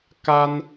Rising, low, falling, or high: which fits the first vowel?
high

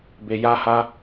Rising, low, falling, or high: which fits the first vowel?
low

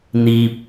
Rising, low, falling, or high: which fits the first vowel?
low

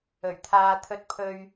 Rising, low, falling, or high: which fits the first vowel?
low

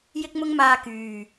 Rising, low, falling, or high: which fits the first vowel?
high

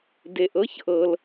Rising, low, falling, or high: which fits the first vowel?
low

